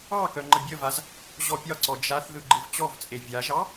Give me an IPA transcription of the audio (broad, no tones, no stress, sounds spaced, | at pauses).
ɑ k œ ŋ͡ǃ ə bʲ ə v a z | ʑ ɔ pʲ ɒ ǀ ɔ d͡ʒ a θ ð ɯ ɡ͡ǃ ɯ v t͡ɕ ɔ v t͡sʼ e vʲ a ʒ ɑ